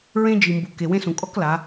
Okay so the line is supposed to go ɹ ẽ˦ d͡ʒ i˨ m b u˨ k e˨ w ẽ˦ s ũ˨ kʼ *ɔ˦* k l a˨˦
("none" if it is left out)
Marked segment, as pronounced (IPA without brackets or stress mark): ɔ˦